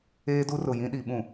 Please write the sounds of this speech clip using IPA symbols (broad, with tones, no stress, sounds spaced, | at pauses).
eː˦ d u˦ r ʊ˨ j ĩ˦ ɗ i˨ ɓ ũ˨